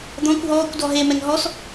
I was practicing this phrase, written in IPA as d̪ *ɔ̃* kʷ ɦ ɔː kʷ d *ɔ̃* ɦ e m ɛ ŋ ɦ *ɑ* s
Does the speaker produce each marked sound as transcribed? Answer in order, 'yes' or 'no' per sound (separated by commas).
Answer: yes, no, no